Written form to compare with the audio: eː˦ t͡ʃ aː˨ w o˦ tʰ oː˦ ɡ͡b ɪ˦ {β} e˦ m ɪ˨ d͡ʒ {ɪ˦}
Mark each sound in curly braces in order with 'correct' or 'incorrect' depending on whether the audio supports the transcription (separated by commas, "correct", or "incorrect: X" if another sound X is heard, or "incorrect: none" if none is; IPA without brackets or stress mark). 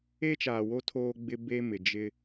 incorrect: b, correct